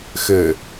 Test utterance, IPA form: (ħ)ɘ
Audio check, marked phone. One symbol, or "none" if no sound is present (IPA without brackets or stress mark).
x